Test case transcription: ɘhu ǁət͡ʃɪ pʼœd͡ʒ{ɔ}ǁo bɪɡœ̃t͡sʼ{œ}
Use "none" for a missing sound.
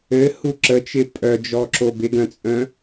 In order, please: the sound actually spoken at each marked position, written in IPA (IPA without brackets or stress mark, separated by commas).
ɔ, œ̃